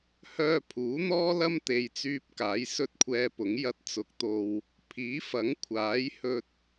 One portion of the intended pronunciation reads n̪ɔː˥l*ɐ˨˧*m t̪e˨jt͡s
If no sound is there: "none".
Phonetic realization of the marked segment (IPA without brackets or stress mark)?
ɐ˥